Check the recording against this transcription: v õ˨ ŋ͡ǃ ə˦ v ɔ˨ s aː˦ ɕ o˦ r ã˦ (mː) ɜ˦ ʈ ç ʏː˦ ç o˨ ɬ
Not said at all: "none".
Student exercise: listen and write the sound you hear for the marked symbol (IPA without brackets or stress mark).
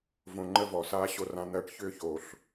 n̪